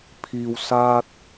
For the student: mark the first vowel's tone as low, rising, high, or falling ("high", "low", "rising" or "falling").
low